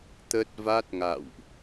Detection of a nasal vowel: absent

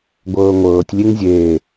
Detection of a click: absent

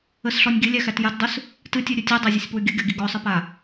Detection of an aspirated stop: absent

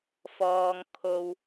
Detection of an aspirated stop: present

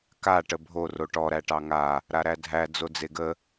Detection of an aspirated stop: absent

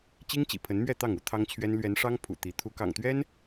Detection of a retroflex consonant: present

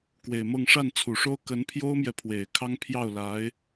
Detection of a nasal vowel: absent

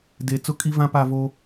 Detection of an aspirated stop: absent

